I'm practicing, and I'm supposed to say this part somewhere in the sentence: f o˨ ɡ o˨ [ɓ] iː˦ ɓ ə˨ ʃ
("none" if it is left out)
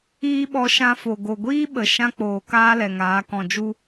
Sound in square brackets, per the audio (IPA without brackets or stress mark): ɡʷ